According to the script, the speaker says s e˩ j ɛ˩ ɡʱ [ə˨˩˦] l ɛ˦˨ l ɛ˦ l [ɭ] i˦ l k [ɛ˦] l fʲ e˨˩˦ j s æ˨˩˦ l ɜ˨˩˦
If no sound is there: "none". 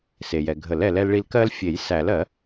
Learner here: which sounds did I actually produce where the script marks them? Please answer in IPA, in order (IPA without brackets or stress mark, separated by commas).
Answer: ə˨˩˦, ɭ, ɜ˦